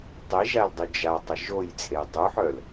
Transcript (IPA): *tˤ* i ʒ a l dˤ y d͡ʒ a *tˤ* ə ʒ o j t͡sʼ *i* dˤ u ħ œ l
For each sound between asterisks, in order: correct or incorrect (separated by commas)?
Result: correct, correct, incorrect